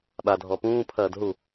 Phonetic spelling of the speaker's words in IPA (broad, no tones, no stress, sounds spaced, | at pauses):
ɓ a dʱ ɔ p ũː pʰ ɐː d ɦ u